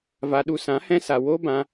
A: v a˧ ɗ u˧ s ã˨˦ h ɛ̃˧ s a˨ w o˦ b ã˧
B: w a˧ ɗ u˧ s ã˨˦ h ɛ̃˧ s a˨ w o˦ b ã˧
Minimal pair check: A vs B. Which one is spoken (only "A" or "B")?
A